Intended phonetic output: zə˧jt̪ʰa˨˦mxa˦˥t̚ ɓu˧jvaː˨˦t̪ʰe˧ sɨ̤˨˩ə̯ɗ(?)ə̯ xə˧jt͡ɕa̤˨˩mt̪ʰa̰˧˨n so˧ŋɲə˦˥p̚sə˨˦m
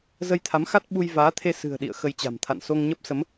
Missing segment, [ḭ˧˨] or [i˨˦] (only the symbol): ḭ˧˨